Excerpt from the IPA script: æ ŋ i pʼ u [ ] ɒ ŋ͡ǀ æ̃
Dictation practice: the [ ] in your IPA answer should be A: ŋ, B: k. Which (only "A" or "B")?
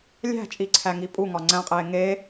A